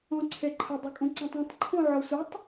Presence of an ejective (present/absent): present